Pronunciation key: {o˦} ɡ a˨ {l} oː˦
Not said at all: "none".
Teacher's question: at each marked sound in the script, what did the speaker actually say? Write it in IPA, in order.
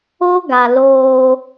o˦, l

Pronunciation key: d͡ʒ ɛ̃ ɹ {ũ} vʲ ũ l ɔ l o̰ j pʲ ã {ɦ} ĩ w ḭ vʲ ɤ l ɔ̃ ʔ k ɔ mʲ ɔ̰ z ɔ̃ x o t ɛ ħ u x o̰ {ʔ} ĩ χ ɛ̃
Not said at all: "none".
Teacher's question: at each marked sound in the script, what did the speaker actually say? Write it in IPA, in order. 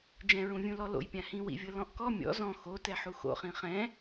ũ, h, χ

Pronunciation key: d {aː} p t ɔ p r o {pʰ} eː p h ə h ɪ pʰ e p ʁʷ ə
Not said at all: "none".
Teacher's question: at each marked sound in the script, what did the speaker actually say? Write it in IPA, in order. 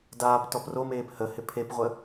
aː, m

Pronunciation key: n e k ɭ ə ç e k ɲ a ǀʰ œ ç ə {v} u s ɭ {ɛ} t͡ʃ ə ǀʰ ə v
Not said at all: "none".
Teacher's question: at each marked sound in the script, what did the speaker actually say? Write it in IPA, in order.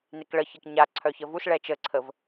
v, ɛ

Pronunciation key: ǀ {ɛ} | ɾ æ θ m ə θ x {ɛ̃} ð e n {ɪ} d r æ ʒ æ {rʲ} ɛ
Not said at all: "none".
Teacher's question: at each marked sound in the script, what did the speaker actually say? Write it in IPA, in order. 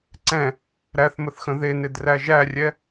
ɛ̃, ə̃, ɪ, rʲ

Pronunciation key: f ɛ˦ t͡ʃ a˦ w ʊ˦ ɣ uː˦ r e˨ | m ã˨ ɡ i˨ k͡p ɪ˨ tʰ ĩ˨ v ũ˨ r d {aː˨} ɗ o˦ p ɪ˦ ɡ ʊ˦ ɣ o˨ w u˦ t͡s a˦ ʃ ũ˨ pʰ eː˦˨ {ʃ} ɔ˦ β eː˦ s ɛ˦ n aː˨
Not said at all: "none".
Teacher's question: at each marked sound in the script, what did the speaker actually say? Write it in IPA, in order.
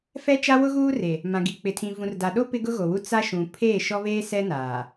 a˨, ʃ

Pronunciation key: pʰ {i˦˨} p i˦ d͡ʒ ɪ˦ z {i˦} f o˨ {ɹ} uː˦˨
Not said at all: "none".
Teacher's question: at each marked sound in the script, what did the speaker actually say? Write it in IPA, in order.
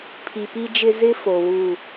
i˨, ɪ˦, w

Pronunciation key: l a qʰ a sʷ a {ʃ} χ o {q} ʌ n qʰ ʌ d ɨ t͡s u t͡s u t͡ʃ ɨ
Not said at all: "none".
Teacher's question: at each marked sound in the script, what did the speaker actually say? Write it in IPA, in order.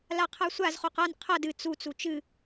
z, q

